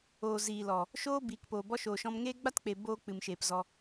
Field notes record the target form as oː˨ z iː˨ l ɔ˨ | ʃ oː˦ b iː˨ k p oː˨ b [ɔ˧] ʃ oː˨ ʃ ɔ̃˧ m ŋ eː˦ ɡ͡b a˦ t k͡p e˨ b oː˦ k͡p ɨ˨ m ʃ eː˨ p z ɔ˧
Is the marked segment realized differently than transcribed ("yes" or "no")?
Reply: no